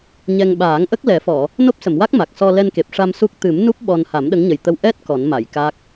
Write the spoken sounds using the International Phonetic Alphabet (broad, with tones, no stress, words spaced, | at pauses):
ɲɛ˧ŋ ɓaː˨˩˦ŋʔə˦˥k̚ lɛ˨˩˦fɔ˨˩˨ | no˦˥p̚sə˨˩˨mwa˦˥k̚ ma˨˩k̚sɔ˧ lɛ˧nke˨˩p̚ʂa˧m su˦˥k̚ t̪ɨ˨˩˦mnu˦˥p̚ ɓɔ˧n ha˨˩˦mɗə˧˥ŋɲə˨˩jt̪ə˧w ʔɛ˦˥t̚ kɔ˨˩˦nma˨˩˨jka˦˥k̚